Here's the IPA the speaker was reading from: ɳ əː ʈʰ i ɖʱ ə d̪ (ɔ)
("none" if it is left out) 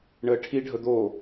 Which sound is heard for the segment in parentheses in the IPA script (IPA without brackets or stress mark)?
o